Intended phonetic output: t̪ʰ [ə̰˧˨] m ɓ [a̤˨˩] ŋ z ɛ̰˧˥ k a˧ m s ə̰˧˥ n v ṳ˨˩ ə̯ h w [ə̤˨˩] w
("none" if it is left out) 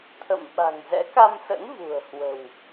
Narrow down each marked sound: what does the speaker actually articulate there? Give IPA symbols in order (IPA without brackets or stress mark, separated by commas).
ə̰˧˨, a̤˨˩, ə̤˨˩